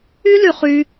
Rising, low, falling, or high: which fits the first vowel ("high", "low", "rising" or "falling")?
high